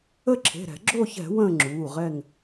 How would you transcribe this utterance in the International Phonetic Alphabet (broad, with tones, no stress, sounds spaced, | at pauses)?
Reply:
ə˦˨ ǁʰ e̤˩˧˩ ɾ ɛ̤˧˩˧ ɡ͡ǁ o˦˨ ç ɛ̤˧˩˧ w ə̃ː˦˨ ŋ͡ǁ uː˩˧˩ ʁ ɛ˦˨ ŋ